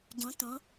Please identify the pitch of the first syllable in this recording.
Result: rising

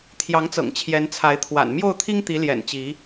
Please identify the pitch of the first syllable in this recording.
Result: rising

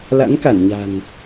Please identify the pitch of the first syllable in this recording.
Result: rising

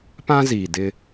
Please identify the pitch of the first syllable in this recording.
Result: high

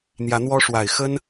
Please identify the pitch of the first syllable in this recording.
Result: rising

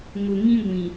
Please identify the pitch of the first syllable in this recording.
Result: low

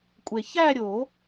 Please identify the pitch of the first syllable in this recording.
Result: low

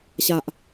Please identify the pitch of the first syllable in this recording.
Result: low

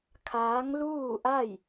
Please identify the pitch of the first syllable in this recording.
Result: rising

